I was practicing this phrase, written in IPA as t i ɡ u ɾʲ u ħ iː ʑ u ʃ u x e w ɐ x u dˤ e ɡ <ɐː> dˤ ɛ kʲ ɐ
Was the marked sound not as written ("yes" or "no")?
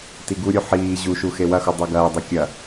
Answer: no